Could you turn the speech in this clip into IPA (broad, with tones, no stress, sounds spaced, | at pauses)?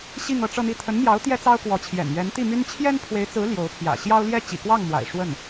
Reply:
ɕ i˥˧ ŋ ɤ˥˧ ʈ͡ʂ ɤ˥˧ n̪ i˥˩ t̪ʰ ə˧˥ n m j ɑ˧˥ ʊ̯ t̪ j ɛ˥ t͡s ɑ˥ ʊ̯ k w ɔ˧˥ t͡ɕʰ j ɛ̰˨˩ n ɥ ɛ˧˥ n t̪ i˥˩ m y˥ n t͡ɕʰ j ɛ˥ n pʰ w e˧˥ ɪ̯ t͡s ɹ̩˧˥ l j o˧˥ ʊ̯ pʰ j ä̰˨˩ ɕ j ɑ˥ ʊ̯ l j ɛ˥ t͡ɕ ḭ˨˩ k w ɑ˥˩ ŋ m w a̰˨˩ ɪ̯ ʂ w ə˥˩ n